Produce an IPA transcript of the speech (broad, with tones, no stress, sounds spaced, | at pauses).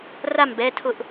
r a˥˩ m b ɛ˩˧˩ tʰ ʊ˧˩˧ ʔ